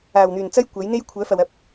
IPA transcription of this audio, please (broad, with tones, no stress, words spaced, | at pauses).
aː˨˩wn̪yː˨˩nt͡sɐ˥j kʷɐ˨˥jn̪e˥j kʷʰœː˨˥fɐ˨wɐ˧p̚